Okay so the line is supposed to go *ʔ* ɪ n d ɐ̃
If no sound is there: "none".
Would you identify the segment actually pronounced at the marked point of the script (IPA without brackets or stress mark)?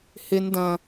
h